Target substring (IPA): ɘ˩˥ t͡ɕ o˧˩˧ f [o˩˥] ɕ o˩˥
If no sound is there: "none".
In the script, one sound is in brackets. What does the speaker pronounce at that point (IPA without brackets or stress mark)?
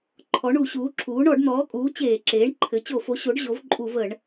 o˩˥